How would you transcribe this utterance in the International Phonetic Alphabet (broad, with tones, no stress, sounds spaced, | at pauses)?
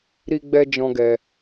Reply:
ɾ i˧ ɡ͡b ɛ˧ d͡ʒ ɔ̃˦ ɡ ɛ˧